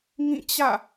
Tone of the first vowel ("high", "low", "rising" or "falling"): falling